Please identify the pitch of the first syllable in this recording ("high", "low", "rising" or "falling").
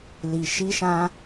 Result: low